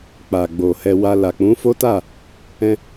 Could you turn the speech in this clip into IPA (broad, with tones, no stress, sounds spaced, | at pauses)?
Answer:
k͡p a˨ ɡ͡b o˨ h ɛ˧ w a˧ l a˨ k͡p ũ˨˦ f o˦ t a˦˨ | ɛ̃˧